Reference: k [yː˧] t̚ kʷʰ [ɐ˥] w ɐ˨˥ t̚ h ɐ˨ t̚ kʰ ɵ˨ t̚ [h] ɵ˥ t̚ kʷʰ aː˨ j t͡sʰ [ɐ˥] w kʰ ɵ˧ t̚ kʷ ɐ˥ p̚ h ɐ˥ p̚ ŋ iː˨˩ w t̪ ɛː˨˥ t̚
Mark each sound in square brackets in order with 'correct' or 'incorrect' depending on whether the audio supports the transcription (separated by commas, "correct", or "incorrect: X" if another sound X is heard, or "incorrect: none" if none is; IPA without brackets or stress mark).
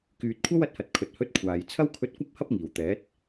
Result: incorrect: yː˨, correct, correct, correct